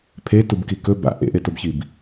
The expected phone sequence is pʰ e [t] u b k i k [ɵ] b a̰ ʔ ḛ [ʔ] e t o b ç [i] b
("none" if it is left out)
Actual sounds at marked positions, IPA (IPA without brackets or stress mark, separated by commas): t, ɵ, ʔ, i